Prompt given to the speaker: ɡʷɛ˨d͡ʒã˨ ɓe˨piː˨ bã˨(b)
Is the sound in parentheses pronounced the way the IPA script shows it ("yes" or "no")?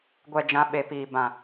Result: no